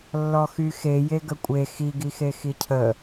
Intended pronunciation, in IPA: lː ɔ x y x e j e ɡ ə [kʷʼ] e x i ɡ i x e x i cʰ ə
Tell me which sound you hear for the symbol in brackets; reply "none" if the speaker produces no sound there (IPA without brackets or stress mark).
kʷʼ